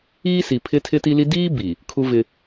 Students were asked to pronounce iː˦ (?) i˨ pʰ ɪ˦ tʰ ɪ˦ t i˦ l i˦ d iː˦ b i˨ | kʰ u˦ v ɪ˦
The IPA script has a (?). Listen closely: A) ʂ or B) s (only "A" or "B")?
B